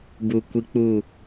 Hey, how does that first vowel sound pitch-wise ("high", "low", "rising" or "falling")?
low